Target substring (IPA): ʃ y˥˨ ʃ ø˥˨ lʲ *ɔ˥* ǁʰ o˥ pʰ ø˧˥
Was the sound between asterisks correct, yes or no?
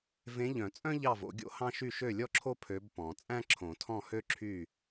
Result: yes